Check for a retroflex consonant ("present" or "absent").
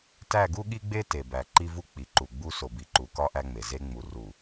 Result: absent